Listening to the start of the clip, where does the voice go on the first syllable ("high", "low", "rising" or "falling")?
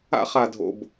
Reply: high